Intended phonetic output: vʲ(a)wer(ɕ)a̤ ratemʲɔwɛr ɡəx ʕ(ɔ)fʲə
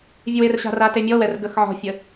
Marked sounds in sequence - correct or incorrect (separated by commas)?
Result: incorrect, correct, incorrect